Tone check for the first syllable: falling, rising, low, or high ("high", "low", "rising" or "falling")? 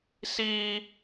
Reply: high